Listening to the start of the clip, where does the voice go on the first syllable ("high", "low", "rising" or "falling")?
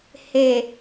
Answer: low